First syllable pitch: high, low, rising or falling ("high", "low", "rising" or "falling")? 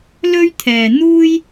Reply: high